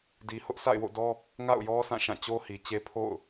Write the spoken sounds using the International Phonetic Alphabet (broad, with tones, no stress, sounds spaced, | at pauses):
d i˨ h ʊ˦ ʔ s a̰˦˨ ɪ̯ w o̰˦˨ d ɔ˦ | ŋ a̰˦˨ ʊ̯ j ɔ˦ sʰ ã˦˨ ʃ ã˦˨ t͡ɕ o˦ h i˨ t͡ɕ e˦ pʰ o̰˦˨ ʊ̯